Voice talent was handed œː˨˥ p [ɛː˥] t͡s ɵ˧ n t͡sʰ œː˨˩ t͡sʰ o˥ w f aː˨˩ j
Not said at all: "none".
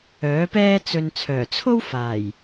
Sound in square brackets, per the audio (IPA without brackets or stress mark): ɛː˥